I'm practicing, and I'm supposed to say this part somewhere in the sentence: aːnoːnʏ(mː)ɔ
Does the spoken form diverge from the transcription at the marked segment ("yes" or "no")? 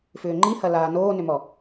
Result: yes